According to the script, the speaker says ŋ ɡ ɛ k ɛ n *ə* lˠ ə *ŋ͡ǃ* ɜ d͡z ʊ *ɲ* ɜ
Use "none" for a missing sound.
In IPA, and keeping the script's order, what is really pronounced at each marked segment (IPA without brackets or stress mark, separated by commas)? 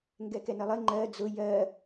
ə, ŋ͡ǃ, j